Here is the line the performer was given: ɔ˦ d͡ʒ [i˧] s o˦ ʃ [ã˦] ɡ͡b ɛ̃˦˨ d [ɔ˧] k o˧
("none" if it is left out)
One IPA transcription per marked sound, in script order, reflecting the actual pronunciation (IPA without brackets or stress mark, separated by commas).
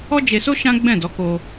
e˧, ã˦, ɔ˨˦